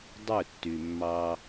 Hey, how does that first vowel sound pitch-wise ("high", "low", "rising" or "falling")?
falling